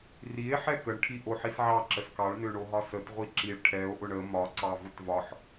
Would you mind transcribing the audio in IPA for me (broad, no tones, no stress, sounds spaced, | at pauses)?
r i e̯ ħ ɛ k ə ɳ ʈʰ i ʔ o ħ i s ʕ ɑ ǁ ə s k ɑ ɭ n ø ɳ o ɦ ɒ s ə t ʁʷ i ǁ i ɭ ʈʰ ɛ o̯ ʔ ʊ ɳ ə m ɒ ǀ ɑ v ʊ t v ɒ ħ